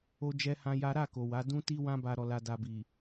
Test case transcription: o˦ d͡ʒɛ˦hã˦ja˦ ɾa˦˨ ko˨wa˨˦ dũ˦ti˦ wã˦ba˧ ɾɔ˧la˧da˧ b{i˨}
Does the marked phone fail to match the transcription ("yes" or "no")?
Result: no